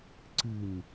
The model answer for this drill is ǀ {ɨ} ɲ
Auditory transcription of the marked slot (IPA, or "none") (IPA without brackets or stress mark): ɨ